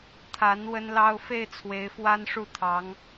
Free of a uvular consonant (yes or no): yes